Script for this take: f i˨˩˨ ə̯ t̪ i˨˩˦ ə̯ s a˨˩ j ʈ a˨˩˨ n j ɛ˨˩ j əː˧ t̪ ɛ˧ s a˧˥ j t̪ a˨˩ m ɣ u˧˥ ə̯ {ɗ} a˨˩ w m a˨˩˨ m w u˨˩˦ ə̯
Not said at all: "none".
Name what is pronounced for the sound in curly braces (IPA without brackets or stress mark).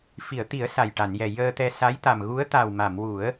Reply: t̪